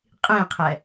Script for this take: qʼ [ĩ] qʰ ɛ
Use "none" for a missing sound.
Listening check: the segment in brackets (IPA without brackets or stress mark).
ĩ